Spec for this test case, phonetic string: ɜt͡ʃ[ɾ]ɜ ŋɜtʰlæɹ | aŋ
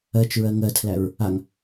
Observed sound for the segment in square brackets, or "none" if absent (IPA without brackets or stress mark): ɹ